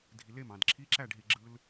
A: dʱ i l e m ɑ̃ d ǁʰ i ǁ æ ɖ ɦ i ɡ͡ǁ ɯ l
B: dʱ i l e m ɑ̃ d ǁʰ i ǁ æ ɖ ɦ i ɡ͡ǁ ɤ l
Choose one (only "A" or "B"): A